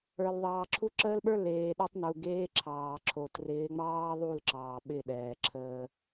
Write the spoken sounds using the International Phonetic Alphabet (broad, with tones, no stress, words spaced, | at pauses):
ə˞˨l ðˤɑː˨ǁʰu˦ ǁəː˦lɓə˞˦ leː˨ɗe˦tˤnu˨ ɡeː˦ǁʰɑː˨ǁʰo˨ trɪː˨˦ŋ͡mɑː˦ðˤu˦˨l ǁɑː˨ɓɪ˦˨ɗɛː˨ǁʰəː˦